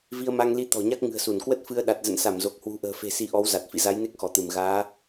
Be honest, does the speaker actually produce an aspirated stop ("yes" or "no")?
no